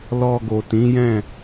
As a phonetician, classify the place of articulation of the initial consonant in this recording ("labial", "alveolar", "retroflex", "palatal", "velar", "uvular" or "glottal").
alveolar